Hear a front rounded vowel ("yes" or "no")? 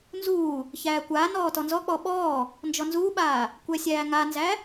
no